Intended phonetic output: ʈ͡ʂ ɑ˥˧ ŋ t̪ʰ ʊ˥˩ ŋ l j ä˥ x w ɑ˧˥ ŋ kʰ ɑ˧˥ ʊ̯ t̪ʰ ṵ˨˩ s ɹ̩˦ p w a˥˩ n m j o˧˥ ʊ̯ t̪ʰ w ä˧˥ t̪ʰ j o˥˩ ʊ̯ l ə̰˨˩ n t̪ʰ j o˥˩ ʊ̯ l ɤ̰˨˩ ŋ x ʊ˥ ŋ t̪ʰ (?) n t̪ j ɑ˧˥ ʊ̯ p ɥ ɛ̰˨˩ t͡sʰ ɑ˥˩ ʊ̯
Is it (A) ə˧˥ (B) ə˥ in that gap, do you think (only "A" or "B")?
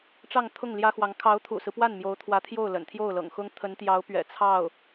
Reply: A